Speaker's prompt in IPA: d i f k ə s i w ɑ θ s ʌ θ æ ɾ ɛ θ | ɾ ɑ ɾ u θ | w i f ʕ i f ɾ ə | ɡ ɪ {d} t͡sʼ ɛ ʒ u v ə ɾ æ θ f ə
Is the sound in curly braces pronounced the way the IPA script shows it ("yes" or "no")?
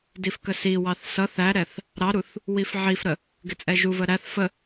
no